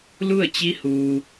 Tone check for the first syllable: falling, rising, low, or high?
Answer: falling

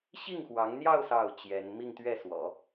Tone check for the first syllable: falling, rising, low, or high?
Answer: falling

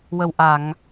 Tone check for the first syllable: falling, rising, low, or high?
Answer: low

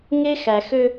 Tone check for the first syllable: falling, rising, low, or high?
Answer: high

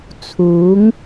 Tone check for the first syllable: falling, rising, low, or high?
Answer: rising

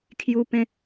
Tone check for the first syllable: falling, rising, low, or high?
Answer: high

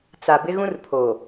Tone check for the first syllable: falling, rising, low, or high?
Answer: low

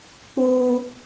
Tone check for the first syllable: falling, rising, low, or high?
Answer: high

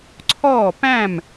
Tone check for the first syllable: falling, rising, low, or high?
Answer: falling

